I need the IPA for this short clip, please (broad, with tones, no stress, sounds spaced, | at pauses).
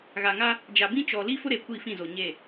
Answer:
ɣ a˨ ŋ a˦ | d͡ʒ a˨ b ĩ˦ t͡ʃ ɔ˨ l i˦ f ʊ˦ ɾ e˨ kʷ i˦˨ f ĩ˦˨ z o˨ ɲ e˦˨